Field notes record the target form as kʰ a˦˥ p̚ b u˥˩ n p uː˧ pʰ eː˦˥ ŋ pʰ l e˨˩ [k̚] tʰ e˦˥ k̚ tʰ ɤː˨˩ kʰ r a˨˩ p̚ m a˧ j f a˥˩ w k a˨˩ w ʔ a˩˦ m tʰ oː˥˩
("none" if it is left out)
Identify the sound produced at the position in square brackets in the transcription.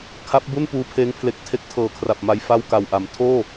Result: k̚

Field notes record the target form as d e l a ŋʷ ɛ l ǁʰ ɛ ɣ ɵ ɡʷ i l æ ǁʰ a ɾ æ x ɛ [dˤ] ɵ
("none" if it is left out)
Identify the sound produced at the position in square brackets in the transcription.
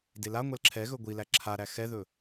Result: ð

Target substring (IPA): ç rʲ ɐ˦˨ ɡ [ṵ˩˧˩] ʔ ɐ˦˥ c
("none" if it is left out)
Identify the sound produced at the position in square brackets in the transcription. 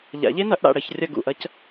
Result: ṵ˩˧˩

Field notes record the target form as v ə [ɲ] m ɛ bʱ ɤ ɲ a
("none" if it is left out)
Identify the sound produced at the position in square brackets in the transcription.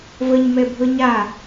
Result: ɲ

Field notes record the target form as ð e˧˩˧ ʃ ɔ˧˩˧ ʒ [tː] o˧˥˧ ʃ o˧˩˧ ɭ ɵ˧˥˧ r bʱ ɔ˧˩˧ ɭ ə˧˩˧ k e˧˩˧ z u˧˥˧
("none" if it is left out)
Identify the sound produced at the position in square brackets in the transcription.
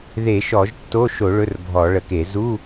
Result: tː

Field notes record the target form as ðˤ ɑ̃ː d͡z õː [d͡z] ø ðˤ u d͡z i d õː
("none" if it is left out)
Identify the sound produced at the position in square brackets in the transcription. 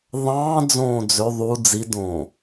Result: d͡z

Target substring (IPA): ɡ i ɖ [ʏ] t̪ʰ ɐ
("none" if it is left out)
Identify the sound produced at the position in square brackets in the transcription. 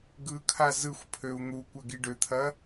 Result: ʏ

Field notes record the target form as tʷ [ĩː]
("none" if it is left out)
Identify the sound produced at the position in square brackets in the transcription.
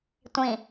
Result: ĩ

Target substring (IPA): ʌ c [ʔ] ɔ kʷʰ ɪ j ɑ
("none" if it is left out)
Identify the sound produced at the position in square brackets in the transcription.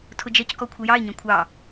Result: k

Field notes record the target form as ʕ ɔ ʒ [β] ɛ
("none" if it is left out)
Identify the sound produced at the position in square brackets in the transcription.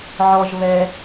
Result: β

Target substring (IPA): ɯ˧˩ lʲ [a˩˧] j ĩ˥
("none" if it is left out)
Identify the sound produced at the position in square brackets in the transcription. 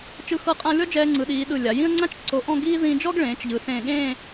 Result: a˩˧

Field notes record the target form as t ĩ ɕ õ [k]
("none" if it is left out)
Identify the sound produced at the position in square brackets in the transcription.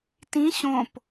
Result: p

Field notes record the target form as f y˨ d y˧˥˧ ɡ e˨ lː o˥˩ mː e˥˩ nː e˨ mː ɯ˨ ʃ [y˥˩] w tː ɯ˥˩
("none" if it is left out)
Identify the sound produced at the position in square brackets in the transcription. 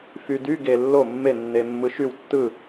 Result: y˥˩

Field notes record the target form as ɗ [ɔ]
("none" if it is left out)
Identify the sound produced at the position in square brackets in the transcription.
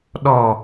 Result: ɔ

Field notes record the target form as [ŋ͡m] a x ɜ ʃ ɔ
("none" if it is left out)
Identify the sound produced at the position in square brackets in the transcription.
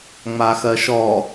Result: ŋ͡m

